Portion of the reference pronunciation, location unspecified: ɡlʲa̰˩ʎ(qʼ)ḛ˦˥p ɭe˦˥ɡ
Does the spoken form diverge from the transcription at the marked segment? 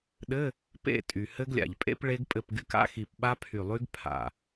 yes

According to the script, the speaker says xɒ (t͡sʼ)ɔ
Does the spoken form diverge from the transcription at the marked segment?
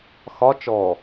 yes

